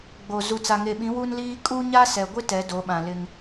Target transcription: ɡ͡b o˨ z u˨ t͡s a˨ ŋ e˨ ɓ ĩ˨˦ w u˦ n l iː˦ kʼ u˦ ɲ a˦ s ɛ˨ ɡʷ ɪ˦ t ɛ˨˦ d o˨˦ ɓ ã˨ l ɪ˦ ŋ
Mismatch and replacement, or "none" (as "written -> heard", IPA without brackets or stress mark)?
none